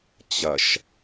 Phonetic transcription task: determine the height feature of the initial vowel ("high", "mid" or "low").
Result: mid